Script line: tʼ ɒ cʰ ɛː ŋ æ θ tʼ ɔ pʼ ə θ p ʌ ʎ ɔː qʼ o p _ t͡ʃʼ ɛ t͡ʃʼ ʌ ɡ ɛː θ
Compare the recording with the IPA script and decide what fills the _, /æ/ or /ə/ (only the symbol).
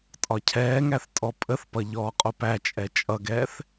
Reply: æ